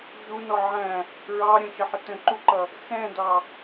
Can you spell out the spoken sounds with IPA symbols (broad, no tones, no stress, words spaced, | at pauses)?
ʒunɔ ʕæ̃ | ɹɑ ɾʲə̃ʃəħɪ tə̃ǃuǃʌ | xɛ̃dɑ